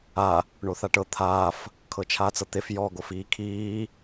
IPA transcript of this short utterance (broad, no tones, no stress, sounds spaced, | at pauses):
a | ɳ o θ a ʈ ɤ t̪ʰ aː f | kʰ ɤ t͡ʃʰ aː t͡s ɤ t̪ e f j ɔ ɡ o f iː kʰ iː